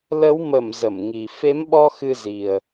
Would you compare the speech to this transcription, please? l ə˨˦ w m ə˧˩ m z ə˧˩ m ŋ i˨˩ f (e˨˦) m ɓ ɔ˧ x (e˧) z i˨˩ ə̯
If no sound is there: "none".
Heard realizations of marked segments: e˨˦, ɨ˧

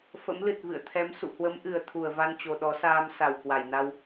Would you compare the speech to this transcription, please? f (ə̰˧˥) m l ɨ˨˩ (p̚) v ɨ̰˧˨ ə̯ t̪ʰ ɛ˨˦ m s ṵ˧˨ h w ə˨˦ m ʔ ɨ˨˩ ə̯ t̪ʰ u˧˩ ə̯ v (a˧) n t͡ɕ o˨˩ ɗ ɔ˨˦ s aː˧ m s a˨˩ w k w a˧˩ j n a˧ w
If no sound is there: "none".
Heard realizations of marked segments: ə̰˧˥, t̚, a˧

